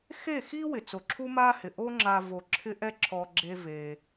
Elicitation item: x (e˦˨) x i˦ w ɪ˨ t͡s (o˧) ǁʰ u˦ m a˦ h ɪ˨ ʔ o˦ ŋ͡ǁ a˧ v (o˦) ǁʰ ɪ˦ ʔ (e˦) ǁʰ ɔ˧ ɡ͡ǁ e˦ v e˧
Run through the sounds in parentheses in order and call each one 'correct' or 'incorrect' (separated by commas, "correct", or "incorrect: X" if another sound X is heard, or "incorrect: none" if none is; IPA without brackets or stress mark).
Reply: correct, incorrect: o˨, incorrect: o˧, incorrect: ɛ˦